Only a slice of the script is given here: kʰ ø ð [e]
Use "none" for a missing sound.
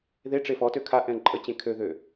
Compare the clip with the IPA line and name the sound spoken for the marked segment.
ø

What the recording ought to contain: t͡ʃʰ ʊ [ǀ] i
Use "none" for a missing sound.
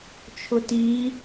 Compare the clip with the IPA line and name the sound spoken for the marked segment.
t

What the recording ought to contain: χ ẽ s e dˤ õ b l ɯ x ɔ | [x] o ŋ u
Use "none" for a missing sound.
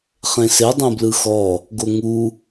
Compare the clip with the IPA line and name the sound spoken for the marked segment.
ɡ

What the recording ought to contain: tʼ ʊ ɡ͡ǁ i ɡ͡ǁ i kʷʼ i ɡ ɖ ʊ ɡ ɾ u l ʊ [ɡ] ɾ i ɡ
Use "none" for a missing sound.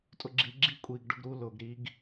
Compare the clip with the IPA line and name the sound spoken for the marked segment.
ɡ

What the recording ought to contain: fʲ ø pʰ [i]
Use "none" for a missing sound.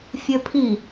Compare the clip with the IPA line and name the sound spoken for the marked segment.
i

